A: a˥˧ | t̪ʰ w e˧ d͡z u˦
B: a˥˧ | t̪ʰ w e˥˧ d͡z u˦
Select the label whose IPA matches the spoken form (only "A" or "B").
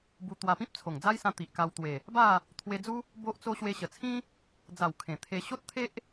A